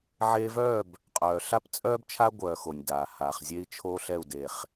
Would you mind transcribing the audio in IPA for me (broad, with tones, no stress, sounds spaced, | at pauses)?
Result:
ʕ eː˧ v œː˦˨ b | qʼ œː˨ ɬ a˦ p t͡sʼ œː˦ b t͡ʃʰ a˦ ɡʷ œː˧ x o˨ nʲ d aː˨ h aː˨ χ zʲ e˦ i̯ t͡ʃʰ o˦ ɬ ɛ˦˨ u̯ d e˨ χ